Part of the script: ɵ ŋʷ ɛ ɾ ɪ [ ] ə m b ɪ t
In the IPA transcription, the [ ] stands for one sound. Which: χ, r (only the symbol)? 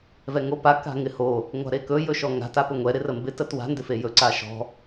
r